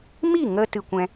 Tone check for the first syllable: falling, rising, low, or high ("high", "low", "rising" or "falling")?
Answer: falling